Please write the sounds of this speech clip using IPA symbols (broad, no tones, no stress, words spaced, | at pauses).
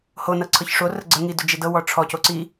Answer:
ho nɤǀʰɤçʂo rəɡ͡ǀə ŋidʏd͡ʒedɤ wɔʈ͡ʂʰɔ coǀi